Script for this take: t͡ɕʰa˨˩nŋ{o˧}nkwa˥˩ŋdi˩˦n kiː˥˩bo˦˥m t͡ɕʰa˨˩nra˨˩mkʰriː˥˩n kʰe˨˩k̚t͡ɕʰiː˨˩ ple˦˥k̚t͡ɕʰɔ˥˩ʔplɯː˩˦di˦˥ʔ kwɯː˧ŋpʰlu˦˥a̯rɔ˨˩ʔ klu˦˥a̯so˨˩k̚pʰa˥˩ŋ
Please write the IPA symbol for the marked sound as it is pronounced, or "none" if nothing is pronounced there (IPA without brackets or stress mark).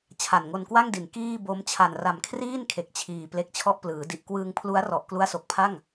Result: o˧